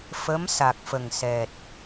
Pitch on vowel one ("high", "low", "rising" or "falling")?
rising